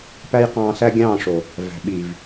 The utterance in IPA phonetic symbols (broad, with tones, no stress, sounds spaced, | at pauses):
p æ˦ j q ɑ̃ː˧ s æ˦ ɡʲ ɑ̃ː˦˨ ʂ o˨ | v æ̤˨ ɓ i˨ v